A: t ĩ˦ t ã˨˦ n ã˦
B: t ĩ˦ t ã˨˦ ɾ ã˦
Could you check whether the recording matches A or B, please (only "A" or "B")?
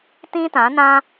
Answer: A